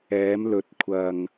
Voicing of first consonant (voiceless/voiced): voiced